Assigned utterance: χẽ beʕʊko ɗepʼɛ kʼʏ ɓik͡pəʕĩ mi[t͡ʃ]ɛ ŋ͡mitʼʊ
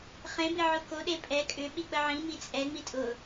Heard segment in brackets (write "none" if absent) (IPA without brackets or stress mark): t͡sʼ